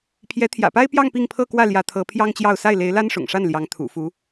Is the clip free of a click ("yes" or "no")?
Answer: yes